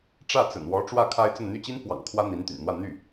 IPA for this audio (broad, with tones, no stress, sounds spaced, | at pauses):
ʈ͡ʂ ä˥˩ t͡s ə̰˨˩ n w ɔ˧˥ ʈ͡ʂ w ä˥˩ kʰ a˥ ɪ̯ t͡s ə˥˧ n n̪ y˥˩ t͡ɕ i˥ n f w ɑ̰˨˩ ŋ kʰ w ä˥ n̪ i˧˥ n t̪ y̰˨˩ n n̪ w ä˥˧ n̪ y˥˩